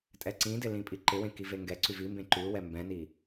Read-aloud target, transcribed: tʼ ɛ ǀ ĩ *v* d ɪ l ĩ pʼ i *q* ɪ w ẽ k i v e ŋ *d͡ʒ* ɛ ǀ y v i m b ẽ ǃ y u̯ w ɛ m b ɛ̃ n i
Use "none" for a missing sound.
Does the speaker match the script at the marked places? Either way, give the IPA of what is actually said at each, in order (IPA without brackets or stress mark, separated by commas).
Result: none, ǃ, ɡ